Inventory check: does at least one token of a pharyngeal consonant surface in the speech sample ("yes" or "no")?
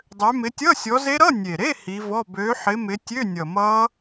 yes